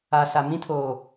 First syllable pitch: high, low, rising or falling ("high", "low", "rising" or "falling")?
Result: low